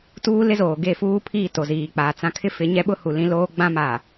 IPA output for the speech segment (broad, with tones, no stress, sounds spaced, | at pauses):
t uː˦ l ɪ˦ z oː˨ ɡ e˦˨ f uː˦ pʰ iː˦˨ t o˨ z iː˨ k͡p aː˨ t͡s ã˦ kʰ ɪ˦ f ɪ˨˦ ɲ ɛ˦ ɓ ʊ˦ h u˨ l ĩ˦ l oː˦ ɡ͡b ã˦ m a˨